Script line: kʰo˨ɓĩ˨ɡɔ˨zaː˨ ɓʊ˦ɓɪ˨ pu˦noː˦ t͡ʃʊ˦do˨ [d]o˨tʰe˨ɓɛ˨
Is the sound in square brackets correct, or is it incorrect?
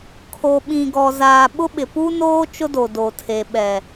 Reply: correct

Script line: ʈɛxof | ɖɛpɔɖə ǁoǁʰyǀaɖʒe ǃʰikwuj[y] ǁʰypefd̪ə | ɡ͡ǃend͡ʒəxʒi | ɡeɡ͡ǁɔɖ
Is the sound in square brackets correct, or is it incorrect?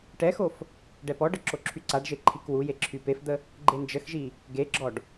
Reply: incorrect: e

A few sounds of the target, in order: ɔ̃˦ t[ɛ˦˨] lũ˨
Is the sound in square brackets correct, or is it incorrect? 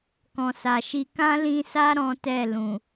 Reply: correct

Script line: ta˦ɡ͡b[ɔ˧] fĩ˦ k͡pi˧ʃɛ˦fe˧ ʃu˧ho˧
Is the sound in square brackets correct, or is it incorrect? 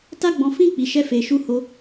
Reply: incorrect: ɔ̃˧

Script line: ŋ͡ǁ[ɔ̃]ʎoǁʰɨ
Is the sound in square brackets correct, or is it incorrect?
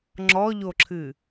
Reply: incorrect: ɔ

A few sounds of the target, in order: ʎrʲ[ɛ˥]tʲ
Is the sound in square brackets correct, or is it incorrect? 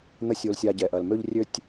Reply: incorrect: ø˥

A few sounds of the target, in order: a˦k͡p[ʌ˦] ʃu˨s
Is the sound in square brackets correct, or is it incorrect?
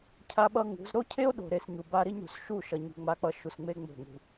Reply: correct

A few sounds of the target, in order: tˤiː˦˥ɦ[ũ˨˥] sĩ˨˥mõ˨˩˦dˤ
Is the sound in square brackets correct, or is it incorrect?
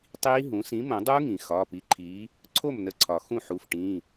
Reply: correct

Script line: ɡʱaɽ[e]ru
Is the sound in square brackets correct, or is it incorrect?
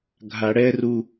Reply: incorrect: ɛ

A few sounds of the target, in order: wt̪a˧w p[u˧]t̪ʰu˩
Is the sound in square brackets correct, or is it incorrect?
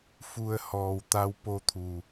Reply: incorrect: o˧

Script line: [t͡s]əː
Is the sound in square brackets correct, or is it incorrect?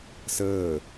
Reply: incorrect: s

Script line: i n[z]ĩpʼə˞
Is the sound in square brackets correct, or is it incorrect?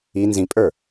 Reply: correct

